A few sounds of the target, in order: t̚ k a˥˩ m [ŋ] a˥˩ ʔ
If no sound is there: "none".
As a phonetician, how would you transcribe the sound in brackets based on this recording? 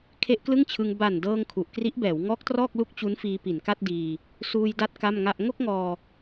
ŋ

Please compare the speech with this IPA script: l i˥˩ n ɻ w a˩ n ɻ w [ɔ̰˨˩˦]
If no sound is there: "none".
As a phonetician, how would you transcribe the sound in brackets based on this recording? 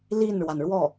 ɔ˥˩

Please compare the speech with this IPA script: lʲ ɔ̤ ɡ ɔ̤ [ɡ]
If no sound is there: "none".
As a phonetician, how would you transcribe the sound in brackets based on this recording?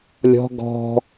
none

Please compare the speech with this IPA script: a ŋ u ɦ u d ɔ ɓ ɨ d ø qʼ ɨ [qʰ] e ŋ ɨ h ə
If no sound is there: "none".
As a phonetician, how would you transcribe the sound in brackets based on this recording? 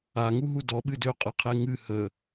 qʰ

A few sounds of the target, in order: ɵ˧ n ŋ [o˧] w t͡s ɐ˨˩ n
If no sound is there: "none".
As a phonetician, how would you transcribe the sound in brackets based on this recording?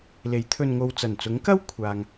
o˧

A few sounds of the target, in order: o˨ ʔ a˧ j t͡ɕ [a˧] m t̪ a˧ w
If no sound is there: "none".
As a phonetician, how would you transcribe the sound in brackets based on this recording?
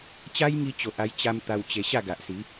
a˧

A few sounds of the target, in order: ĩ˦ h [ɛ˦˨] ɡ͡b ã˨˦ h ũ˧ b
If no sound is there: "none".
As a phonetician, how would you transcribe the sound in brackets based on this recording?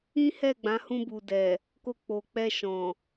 ɛ˦˨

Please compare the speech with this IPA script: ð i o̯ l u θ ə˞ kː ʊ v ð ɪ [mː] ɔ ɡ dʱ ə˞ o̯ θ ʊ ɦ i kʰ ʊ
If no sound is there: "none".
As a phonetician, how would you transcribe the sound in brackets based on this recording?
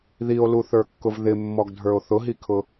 mː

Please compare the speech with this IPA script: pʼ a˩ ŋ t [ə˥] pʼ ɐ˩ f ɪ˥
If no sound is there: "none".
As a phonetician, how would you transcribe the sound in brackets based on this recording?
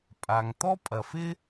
ɔ˥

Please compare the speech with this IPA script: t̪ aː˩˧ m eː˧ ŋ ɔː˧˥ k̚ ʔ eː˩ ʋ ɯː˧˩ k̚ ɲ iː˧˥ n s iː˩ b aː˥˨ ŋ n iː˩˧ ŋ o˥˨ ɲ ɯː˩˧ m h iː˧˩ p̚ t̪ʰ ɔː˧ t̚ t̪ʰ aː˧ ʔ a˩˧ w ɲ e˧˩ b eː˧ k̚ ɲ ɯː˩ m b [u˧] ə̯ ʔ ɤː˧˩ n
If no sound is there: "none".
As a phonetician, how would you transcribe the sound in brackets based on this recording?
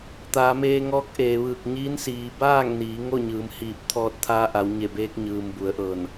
u˩˧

